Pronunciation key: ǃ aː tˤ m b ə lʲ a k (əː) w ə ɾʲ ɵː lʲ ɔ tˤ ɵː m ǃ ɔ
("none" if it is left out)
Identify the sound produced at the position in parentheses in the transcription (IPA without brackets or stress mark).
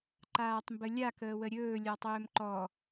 əː